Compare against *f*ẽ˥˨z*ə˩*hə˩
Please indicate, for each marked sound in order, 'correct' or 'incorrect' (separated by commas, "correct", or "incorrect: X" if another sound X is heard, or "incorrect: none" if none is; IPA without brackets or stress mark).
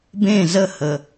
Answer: incorrect: b, incorrect: ə˥˨